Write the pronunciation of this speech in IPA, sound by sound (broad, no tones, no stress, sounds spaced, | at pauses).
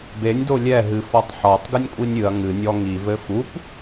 b e nʲ d o lʲ ɛ ɦ ɨ f ɔ tˤ ħ ɔ tˤ ɡ ɨ nʲ kʷʼ i nʲ ɨ ɐ̯ ŋ ɨ nʲ ɔ ŋ i v ɘ f u p